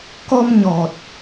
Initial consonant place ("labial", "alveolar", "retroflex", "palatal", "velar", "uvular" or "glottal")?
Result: velar